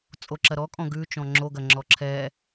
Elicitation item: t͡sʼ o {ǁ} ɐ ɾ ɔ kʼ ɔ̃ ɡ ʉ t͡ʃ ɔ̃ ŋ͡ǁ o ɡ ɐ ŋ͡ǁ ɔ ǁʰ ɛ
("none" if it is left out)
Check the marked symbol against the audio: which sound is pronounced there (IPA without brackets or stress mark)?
ǁ